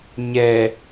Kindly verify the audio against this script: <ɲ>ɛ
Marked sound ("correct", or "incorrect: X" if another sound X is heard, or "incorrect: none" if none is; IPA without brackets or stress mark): correct